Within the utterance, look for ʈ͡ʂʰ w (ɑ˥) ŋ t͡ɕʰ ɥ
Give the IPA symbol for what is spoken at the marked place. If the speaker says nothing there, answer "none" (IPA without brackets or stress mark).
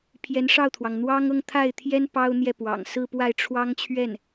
ɑ˥